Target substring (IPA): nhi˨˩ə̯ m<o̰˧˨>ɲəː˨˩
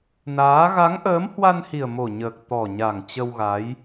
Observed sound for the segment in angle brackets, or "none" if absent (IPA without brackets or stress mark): o˨˩